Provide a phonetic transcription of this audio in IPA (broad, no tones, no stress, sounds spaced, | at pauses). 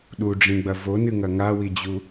ɗ u ɖ͡ʐ ĩ ɡ͡b ɐ v o n ɨ ŋ ɐ ŋ a w i d͡ʑ u